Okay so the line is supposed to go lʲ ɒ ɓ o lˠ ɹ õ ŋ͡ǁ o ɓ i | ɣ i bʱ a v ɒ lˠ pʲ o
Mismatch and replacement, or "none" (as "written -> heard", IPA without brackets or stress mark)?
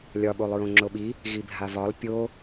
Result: none